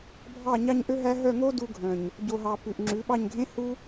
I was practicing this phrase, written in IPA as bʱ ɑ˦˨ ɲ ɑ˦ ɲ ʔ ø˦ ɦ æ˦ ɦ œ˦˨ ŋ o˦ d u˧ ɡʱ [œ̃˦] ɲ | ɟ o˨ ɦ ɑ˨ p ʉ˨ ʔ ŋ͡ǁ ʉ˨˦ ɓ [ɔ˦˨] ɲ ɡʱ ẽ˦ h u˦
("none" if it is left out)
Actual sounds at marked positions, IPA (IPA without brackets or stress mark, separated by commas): œ̃˨, ɑ˦˨